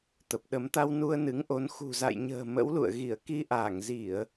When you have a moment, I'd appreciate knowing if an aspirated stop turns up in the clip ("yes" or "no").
no